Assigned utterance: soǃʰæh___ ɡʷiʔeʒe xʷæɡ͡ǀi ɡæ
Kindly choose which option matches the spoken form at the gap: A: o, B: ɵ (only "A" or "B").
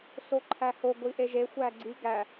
A